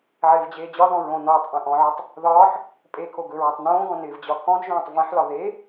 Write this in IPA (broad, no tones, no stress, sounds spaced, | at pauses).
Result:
ʕ ɪː v d͡ʑ eː d͡ʑ ɒ ð ɔ̃ ɹ õ n ɒː tˤ ʔ ẽ ʔ ɔ̃ ʕ ɵ tˤ | ð ɒː ħ | pʼ e kʰ o ɡ ɵ ɹ ɔ tˤ n õː ɡ ɔ̃ n ɪː v d͡ʑ ɒ kʰ ɔ̃ d ʒ õː tˤ v ẽ ħ l ɒ ð e